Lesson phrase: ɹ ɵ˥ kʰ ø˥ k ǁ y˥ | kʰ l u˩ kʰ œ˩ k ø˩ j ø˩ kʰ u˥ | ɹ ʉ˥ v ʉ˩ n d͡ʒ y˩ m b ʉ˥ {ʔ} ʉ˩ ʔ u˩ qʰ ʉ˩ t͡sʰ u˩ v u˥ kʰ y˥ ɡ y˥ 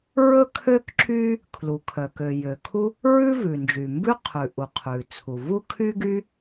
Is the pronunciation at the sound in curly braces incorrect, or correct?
incorrect